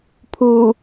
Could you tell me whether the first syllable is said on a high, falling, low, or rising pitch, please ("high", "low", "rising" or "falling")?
low